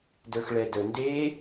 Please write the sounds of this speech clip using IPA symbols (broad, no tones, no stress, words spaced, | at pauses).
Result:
də˞xɭɛdə nde